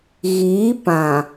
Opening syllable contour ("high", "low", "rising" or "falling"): rising